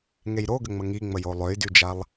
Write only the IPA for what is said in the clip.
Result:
ŋ e j ɾ o ɡ ə ŋ͡m ə ŋ i ŋ͡m ə j o lˠ ø j d y d͡ʒ a lˠ

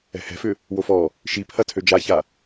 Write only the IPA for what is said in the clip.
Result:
ɛ̤ h ɛ̤ f ʏ | w o f ɔ | ʃ i pʰ ɐ tʰ ø d͡ʒ a ç a

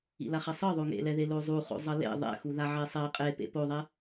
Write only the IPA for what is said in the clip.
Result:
ḭ l a χ ɛ sˤ ɯ ðˤ o ŋ ḛ l ɛ ð e l o zˤ u χ o̰ zˤ ʌ l ḛ ðˤ ɛ̰ x u ð a ʕ e sˤ ɛ qʼ e p ḛ p o ðˤ ɛ

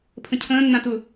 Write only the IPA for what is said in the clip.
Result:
pʰ ə̃ cʰ ə̃ː nː ã t ʊ

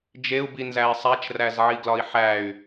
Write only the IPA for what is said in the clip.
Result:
d͡ʒ e u̯ b i n z æ i̯ sˤ æ t͡ʃ r æ z ʕ i ɡ l ɒ i̯ ħ æ y̯

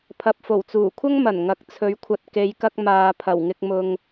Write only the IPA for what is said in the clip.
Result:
pʰ ɐ˨ p̚ f o˨˩ w t͡s uː˨˩ kʷʰ ɐ˥ ŋ m ɐ˨˩ n ŋ ɐ˨˥ k̚ t͡sʰ ɵ˨˧ ɥ kʷʰ ɐ˨ t̚ k e˨˧ j k ɐ˧ k̚ m aː˨ pʰ ɐ˨˩ w ŋ ɪ˧ k̚ m ʊ˧ ŋ

